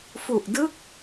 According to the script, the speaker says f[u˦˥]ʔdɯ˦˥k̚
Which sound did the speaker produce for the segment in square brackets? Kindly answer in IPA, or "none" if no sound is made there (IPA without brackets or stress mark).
u˨˩